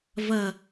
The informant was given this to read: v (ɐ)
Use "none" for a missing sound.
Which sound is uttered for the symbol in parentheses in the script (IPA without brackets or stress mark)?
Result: ɐ